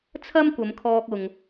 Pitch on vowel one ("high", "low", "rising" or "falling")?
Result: high